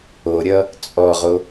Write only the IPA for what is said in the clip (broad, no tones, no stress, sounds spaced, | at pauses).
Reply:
o ɾʲ ʌ | t͡sʼ ɔ ʁ o